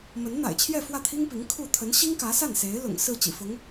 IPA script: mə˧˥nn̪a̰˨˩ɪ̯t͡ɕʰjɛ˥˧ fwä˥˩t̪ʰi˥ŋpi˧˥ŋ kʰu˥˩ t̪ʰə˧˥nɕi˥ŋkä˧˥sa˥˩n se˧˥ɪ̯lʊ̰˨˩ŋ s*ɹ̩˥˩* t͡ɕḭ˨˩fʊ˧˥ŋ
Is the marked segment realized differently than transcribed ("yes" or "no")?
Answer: no